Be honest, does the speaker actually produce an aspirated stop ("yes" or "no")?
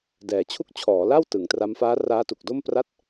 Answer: yes